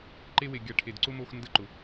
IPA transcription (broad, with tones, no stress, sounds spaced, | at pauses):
ǃ e˦ w e˨ ɡʲ a˧ ʈʰ e˨ d ǀ ʊ˦ m o˧ x n d ə˦˨ ǃ ʊ˨